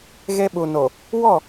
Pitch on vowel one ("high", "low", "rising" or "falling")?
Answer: high